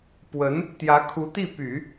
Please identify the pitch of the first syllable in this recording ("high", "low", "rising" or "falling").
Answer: rising